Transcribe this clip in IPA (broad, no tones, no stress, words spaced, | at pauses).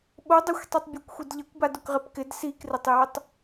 ɓodˤexʷtˤitˤ bʲekʷxʷidʎɛkʷ badʊkʁɪpkɪd sikrɪtˤjotˤ